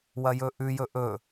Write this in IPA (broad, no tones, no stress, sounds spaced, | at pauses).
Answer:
w ɐ j ɵ ʔ ʉ j ɵ ʔ ɵ